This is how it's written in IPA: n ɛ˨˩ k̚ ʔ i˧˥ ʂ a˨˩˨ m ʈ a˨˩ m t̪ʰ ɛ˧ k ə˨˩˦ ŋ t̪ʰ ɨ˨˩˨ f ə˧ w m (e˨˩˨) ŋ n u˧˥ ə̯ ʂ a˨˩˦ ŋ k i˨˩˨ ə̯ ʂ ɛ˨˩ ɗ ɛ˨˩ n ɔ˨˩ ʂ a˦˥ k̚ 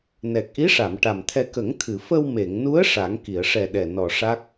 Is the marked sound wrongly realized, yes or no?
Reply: no